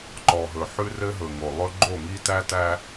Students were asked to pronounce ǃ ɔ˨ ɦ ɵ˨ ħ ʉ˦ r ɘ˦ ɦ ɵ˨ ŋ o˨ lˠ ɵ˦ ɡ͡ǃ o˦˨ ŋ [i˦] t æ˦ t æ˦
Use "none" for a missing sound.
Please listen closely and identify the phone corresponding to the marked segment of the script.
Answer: i˦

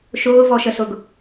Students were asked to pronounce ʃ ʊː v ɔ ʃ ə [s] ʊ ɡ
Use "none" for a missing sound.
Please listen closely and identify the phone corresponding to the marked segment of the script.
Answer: s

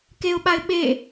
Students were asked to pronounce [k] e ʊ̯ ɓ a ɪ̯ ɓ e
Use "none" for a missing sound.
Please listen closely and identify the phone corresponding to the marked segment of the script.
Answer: k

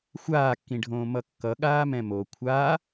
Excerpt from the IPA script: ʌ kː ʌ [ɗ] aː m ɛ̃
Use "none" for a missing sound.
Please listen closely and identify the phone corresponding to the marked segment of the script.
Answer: ɠ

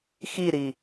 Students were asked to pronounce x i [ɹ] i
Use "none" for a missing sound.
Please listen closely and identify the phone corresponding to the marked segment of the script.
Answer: ɾ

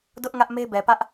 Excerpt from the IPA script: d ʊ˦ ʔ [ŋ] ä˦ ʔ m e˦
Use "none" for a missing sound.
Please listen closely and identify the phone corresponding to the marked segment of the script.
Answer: ŋ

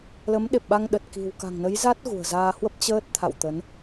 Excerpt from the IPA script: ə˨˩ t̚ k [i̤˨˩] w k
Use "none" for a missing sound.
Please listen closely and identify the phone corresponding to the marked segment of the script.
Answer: i̤˨˩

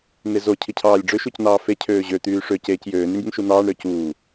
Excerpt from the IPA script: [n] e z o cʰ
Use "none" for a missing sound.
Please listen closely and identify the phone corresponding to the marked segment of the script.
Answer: n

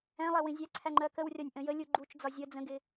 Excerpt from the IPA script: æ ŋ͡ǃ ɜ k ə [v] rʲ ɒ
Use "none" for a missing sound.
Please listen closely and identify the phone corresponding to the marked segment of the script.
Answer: w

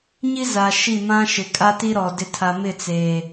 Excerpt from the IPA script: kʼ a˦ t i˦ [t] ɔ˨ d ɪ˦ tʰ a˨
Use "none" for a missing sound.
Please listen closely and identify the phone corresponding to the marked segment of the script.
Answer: ɾ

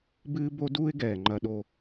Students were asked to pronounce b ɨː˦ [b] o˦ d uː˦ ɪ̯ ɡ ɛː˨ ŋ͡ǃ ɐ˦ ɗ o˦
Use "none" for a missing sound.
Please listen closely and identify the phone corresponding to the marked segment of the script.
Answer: b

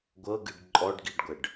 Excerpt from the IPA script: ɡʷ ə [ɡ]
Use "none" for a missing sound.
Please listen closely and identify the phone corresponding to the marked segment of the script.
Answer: ɖ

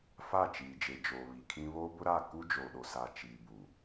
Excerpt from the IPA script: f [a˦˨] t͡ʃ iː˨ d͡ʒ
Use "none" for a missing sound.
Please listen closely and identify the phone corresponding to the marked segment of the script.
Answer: a˦˨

